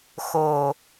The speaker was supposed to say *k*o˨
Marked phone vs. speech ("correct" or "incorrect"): incorrect